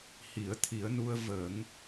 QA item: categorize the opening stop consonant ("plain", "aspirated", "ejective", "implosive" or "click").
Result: aspirated